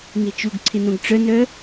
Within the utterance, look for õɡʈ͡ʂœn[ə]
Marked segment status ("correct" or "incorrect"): incorrect